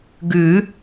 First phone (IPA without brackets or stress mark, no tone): ɡ